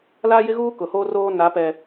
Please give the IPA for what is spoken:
l aː˦ j ɪ˦ ɣ uː˦ k ʊ˨ h oː˦ r oː˦ n a˨˦ p ɛ˨

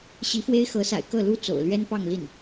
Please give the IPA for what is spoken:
ɕ i˧˥ f w e˥ ɪ̯ x ɤ˧˥ s a̰˨˩ ɪ̯ k ɤ˥˩ l u˥ t͡s o̰˨˩ ʊ̯ l ɥ ɛ˥ n p ɑ˥˧ ŋ l i˥˩ n

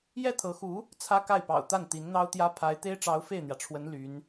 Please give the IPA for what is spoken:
j ɛ˥˩ t̪ʰ ɤ˧˥ x u˧˥ | t͡sʰ ä˥ k a˥˩ ɪ̯ p ɑ̰˨˩ ʊ̯ t̪ a˥˩ n t̪ i˧˥ n n̪ ɑ˥ ʊ̯ t̪ j ä˥ pʰ a˧˥ ɪ̯ t̪ e˥ ɪ̯ ʈ͡ʂ ɑ˧˥ ʊ̯ f e˥˩ ɪ̯ n̪ j ä˩ ʈ͡ʂʰ w ə˧˥ n l y˧˥ n

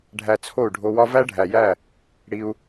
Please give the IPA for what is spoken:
ɖʱ æ˧ t͡sʰ o˦˨ u̯ ɖʱ o˧ w ɒ˦ v æ˦ ɖʱ æ˨ j æ˦˨ | ɽ i˧ u̯

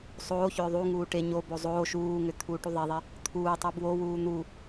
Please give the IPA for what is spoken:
sˤ oː ç ʏː ðˤ u ŋ uː ʈ e ɲ o b o zˤ oː ʃ uː ŋ ʏ t̪ʰ uː ʈ u ðˤ e ðˤ e | t̪ʰ uː tˤ u b w o w uː n̪ u

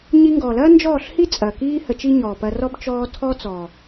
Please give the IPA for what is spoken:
ɲ i˧ ŋ ɡ ɔː˨ l ɐː˦ n d͡ʒ ɔː˦˨ ɬ h i˦ t͡sʼ ɐː˨ k iː˦ h ə˧ t͡ʃ i˦ ɲ ɔː˨ p ɐ˧ r ɔ˦ b t͡ʃ ɔː˧ tʰ ɔː˦ t͡s ɔː˨

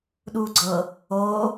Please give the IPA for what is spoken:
ɗ uː ɡ͡ǀ ɤ | oː

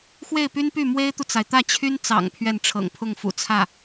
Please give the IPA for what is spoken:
x w e˥˩ ɪ̯ p y˥ n p y˥˩ m w e˥ ɪ̯ t̪ u˨ t͡s a˩ ɪ̯ t̪ ä˥˩ t͡ɕʰ y˥ n t͡s ɑ̰˨˩ ŋ pʰ ɥ ɛ˥˩ n ʈ͡ʂʰ ɤ̰˨˩ ŋ pʰ ʊ˥˩ ŋ f ṵ˨˩ t͡sʰ ä˥˩

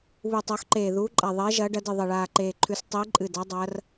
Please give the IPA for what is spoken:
β u˨˩ tˤ o˨˦ x ǃ eː˨˩ ð uː˨˦ ǃʼ a˨˩ ðˤ eː˨˦ ʒ ɐː˨˦ ɖ ɐ˨˦ d ɨ˨˩ ðˤ ɐ˨˩ ɭ aː˨˩ ǃ eː˨˩ ǃʰ ʉ˨˦ s tˤ iː˨˦ ǃʼ ɨ˨˩ d a˨˦ dˤ ɐː˨˦ r

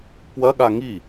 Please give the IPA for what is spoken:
p w ɐ ɠ a ŋ i

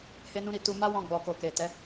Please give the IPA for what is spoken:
h e˦ n ũ˦ ɾ i˦˨ t u˧ m a˦ w ɔ̃˧ ɡ͡b ɔ˨ k o˨ k e˨ t ɛ˨˦

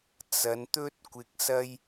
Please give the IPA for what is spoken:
t͡s ɐ˨˧ n t̪ ɵ˥ t̚ kʷ ɪ˧ k̚ s ɐ˥ j

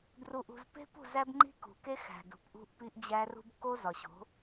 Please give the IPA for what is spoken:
d r u˨ ʔ ṳ˨ z p e̤˦ p ṳ˦˨ z æ˦ b ŋ͡ǃ i̤˦ k ṳ˨ k e˦ x æ̤˨ d ṳ˨ p ʔ ṳ˦ ʔ p i˦ ʔ d͡ʑ æ˦ r ṳ˦ b k o˦ z ɒ˨ ɕ o̤˨˦

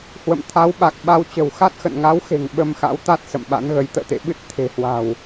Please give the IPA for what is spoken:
h w ə̰˧˨ m t̪ʰ a˨˦ w ɓ a˨˩ k̚ ɓ a˧ w t͡ɕ ə̤˨˩ w x a˦˥ t̚ x ə̰˧˨ n ŋ a˨˦ w x e̤˨˩ ŋ ɓ ə˧ m x a̰˧˥ w t̪ a˦˥ t̚ s ə̰˧˨ m ɓ a̰˧˥ n ɣ ə˨˦ j t̪ ə̰ː˧˨ t̪ ḛ˧˨ ɓ ɨ˦˥ t̚ t̪ʰ e̤˨˩ h w a̤˨˩ w

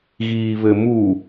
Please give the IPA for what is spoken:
ɣ iː β ɘ m u

